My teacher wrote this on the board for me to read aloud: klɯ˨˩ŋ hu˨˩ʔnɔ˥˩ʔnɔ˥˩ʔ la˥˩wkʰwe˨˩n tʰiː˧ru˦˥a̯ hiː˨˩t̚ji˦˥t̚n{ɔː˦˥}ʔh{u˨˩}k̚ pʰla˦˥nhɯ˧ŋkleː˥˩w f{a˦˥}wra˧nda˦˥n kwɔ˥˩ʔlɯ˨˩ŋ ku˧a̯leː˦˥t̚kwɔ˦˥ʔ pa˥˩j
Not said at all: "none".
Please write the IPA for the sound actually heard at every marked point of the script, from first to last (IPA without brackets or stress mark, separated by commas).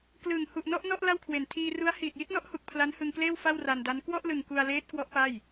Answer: ɔ˦˥, u˨˩, a˥˩